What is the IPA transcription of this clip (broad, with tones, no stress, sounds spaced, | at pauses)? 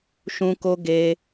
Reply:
ʃ ũ˧ k o˧ ɡ e˧